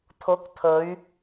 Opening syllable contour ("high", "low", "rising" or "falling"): rising